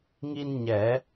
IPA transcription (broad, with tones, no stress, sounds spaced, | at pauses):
ŋ i˧ n ɲ ɛ˨˩˦